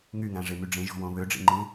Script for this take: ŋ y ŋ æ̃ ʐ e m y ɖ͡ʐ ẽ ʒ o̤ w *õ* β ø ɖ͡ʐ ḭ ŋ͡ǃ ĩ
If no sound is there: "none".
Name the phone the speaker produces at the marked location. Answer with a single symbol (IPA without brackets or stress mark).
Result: õ